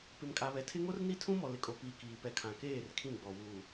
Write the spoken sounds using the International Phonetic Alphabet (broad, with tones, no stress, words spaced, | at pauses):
pɪ˨mkʼa˨βɛ˨tʰɪ˦ ŋo˦rni˦tʰũ˦mɔ˨ lɪ˨kʼo˨piː˨ kiː˨ pɛ˨kʰã˨keː˦˨r kʰĩ˦˨ɡ͡bɔ˨ wuː˨